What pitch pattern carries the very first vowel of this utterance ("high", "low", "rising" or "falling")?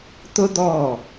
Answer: high